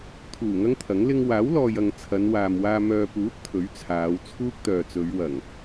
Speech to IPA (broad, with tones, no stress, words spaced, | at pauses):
t̪ʰuː˨˩ŋɐ˥ŋ t̪ʰɐ˨˥ŋ lɪ˧ŋ waː˨˥wlɔː˨jɐ˨ŋ t͡sʰɐ˨˧nwaː˨mwaː˧ mœː˨puː˨˥t̚ t̪ʰɵ˨˥ɥ t͡sʰaː˨˧w t͡sʰuː˥k̚t̪œː˨t͡sɵ˨˧ɥ wɐ˨˩ŋ